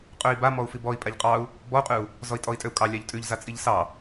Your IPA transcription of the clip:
qʼøi̯ba mɔu̯fibɔi̯ pʼaʎqʼɑu̯ | bɔu̯qʼʉu̯ | zɔi̯tʼɔi̯tʼøu̯kʼɑ lʲɑʎtʼʉʎzat͡sʼiʎ sɑ

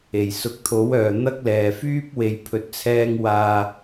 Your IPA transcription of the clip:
e˨˩jsʊ˨˥k̚t̪ʰo˨˥wœː˨ n̪ɐ˥k̚lɛː˨ fyː˥p̚ we˧jpʰɵ˧t̚t͡sʰɛː˥ŋ waː˧

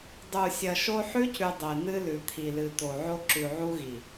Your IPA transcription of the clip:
dˤu˨ sʲɐ˨ʃo˦ ħʉ˦cʉ˨ dˤe˨ n̪ɨ˦lʉ˨ t̪ʰi˨lɨ˨t̪o˨ ʕo˦ ǁʉ˨ʕu˦ɣi˨

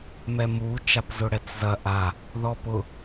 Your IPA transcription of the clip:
mɛmu t͡ʃapzʊɽɛt͡szɐ ʔa | ðɔpʊ

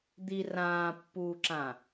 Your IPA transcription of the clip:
d̪i rãːpːuːǁã

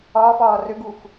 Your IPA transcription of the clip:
ɒːfɒː rʏɡuf

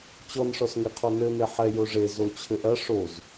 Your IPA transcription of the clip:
t͡ɕɔnʂɔsŋeqʰɔ nɘne ħɛjo ʐe zot͡ɕʰɘʔɐ ʂoz

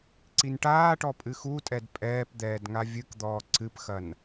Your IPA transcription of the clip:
ǀinʈaːʈɔ pʼɨxutʼɛd pʼɛːpd̪ɛːd ŋavʲɨkd̪ɔː ǀɨpxɐn

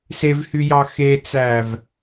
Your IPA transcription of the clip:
sevhyjɑ xet͡sæv

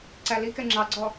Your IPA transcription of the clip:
ǀælikɛ ŋ͡ǁɑɡ͡ǀɔ

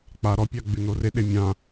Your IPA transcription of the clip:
k͡pa ɾɔpʲa ɡ͡bʉnoreɗe mʲã

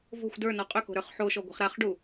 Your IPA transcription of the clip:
vo̤xʷ də˞nɔ qʼʏko̤ ɾə˞χħoʃɔ ɡʷa̤χɾaχɖu

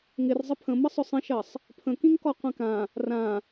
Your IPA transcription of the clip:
ŋɪr zˤəpʰə̃ məsˤʊsˤə̃ʃɜsˤ | pʰə̃kĩŋkɔ qʷĩkã | rã

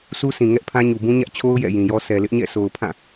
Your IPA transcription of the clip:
su˦sʰĩ˨ ŋɛ˦ʔpʰã˦ɲu˨bũ˦ ɲä˦ʔt͡ɕʰo˦ʊ̯ jɛ̰˦˨jĩ˨jɔ˦ sʰɛ˨lɪ˦ʔɲɛ̰˦˨so˨ʊ̯ pʰã˦˨

